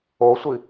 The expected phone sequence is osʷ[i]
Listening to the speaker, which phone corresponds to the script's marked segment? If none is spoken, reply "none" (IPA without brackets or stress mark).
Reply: i